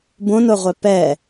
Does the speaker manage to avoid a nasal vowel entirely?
no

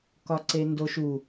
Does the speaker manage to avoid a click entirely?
no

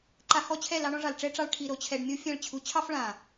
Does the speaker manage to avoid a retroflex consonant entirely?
no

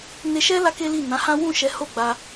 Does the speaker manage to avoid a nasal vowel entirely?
no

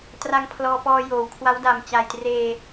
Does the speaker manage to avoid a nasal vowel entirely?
yes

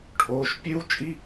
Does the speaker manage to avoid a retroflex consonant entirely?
no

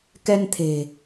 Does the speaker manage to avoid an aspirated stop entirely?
no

